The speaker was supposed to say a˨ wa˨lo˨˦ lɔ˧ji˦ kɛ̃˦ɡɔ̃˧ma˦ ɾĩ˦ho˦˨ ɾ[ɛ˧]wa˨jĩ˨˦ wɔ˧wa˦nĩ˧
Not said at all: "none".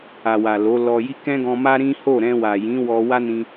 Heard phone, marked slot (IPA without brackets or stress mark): ɛ̃˧